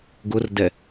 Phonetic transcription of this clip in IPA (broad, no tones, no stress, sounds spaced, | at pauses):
ɡ ʊ r d ɛ